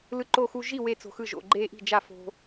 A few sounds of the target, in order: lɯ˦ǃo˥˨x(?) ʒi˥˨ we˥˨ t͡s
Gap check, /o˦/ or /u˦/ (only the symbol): u˦